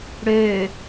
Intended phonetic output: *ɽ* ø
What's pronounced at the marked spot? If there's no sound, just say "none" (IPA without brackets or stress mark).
ɽ